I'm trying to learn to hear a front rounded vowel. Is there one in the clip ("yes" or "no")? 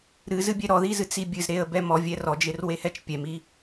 no